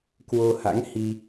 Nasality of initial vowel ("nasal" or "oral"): oral